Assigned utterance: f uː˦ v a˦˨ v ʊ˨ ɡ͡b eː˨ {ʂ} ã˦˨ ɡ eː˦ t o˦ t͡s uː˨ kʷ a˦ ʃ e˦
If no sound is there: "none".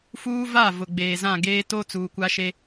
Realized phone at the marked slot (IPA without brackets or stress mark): z